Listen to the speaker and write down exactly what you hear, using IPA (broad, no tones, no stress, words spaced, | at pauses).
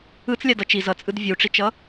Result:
ɯt͡slʲa dʌt͡ʃi zʌt͡sʼɯd vʲuʈ͡ʂit͡ʃʌ